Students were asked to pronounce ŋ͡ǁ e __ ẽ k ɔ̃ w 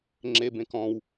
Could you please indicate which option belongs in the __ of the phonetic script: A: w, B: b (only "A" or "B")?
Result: B